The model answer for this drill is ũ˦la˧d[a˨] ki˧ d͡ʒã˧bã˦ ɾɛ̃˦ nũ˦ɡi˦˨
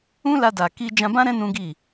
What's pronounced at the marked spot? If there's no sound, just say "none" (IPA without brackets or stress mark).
a˨